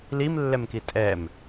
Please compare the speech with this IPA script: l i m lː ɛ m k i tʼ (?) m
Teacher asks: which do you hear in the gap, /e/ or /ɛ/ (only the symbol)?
ɛ